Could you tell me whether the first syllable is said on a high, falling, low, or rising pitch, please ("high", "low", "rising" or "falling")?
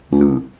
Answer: low